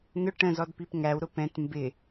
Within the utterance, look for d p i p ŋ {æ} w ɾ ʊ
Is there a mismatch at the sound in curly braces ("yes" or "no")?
no